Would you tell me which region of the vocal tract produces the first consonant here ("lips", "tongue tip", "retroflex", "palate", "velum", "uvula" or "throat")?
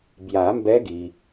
lips